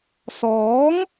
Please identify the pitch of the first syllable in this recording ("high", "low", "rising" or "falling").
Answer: rising